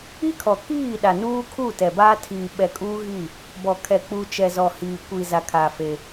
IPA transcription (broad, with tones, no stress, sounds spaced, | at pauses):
i˦ kʰ ɔ˨ k iː˦˨ ɗ a˨ n uː˦ kʰ u˦˨ t ɛ˨ b aː˦ tʰ iː˨ ɓ ɛ˨ kʼ uː˦ ɣ i˦˨ | b ɔ˨ kʰ ɛ˨ k͡p u˦ t͡ʃ ɛ˨ z ɔ˨ h iː˨ kʷ i˨ z a˨ kʰ a˨ f e˦